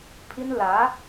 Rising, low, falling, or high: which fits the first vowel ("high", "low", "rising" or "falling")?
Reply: high